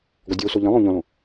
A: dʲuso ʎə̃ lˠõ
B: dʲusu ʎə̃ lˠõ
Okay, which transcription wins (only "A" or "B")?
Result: A